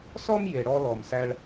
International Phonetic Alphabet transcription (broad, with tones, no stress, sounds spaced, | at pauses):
s ɔ˦ m j e˨ ɽ ɔ˦ l ɔ˨ m s æ˧ ɭ